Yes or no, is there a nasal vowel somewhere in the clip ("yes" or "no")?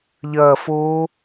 no